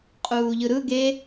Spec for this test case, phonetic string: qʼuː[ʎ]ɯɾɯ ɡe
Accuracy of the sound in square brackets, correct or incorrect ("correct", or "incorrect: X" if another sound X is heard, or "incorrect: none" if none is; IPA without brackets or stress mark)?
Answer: correct